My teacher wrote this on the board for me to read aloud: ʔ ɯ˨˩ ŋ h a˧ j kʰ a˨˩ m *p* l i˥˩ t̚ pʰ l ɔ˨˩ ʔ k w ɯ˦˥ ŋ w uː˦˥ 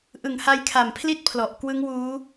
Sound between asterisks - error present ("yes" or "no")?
yes